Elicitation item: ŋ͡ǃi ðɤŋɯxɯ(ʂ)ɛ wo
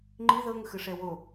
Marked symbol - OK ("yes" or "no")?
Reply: yes